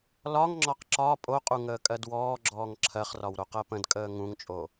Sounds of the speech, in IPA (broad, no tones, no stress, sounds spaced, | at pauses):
l ɒ ŋ ŋ͡ǁ ɒ q ǁ ɒ pʼ o qʼ u ŋ əː kʼ ɜ d w ɔː ɡ͡ǁ ɔː ŋ ǁʰ ɜ χ r ɒ w ɾ o q ɜ p ə̃ d kʼ əː ŋ ũ ŋ t͡ʃʼ o